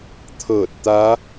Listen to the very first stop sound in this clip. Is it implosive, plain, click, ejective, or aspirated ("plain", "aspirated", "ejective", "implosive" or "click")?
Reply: aspirated